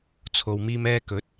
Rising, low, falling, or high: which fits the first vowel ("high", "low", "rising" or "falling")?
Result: low